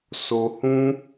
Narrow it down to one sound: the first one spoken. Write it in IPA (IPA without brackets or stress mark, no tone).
s